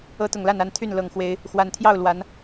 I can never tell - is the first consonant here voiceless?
yes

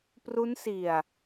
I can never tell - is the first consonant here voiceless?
yes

